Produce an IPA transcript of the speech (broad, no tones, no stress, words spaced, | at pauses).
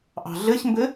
ʔɑ̤ɮɘçmbɘ